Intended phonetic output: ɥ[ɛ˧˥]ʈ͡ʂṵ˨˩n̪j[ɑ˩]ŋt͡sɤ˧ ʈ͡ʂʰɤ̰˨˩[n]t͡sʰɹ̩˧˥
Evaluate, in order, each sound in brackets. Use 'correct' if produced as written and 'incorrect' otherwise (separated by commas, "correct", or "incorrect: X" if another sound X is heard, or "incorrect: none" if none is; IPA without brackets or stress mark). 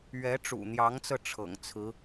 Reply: correct, incorrect: ɑ˧˥, incorrect: ŋ